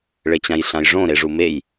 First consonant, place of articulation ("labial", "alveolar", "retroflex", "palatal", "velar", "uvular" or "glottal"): retroflex